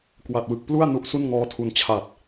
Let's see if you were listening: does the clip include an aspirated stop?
yes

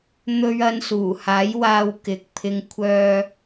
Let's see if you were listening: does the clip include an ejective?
no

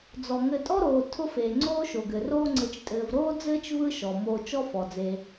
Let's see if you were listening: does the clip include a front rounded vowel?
no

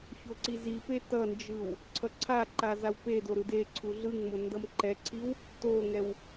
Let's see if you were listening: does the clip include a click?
yes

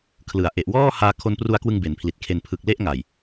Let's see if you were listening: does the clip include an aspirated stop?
yes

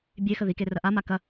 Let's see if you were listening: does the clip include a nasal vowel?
no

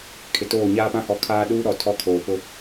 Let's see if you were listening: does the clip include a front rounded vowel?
no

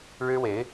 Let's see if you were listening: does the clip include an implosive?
no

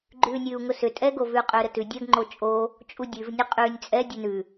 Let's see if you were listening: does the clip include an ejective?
yes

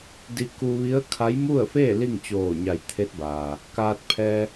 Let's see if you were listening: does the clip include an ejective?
no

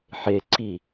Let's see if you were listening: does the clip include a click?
yes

